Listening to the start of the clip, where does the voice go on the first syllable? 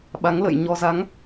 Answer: rising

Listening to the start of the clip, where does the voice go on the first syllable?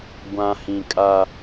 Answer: low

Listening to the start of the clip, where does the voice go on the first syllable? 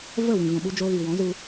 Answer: falling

